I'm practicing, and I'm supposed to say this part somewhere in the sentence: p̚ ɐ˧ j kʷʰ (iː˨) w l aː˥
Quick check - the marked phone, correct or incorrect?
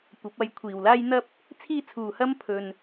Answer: correct